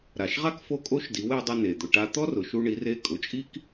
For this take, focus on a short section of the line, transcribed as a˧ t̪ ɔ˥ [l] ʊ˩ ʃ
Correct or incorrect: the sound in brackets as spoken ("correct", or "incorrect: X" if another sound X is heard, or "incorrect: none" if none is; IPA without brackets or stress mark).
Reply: incorrect: r